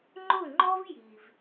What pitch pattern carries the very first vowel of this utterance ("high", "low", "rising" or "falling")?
falling